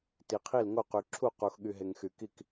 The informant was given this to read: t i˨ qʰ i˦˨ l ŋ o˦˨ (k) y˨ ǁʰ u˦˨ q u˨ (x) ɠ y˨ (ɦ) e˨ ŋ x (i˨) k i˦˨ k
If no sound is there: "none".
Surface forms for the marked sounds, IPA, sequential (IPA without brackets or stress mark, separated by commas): q, x, ɦ, y˨